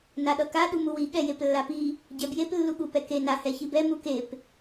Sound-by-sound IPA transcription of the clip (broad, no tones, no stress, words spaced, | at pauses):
naɗʌka ɗumuwi ɠɛjeplːapi | ɟɛbjep lːuɠupɛke na hɛçibɛ mukep